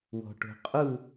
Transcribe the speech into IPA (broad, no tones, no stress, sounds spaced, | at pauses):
w ɔ̤ ʈ o̤ qʼ u